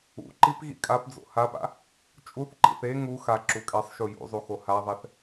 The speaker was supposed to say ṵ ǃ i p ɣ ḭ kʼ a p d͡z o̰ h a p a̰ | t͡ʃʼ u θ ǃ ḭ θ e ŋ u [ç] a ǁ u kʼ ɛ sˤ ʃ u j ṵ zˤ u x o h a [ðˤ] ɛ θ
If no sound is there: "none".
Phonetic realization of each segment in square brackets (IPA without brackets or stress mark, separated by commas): x, ðˤ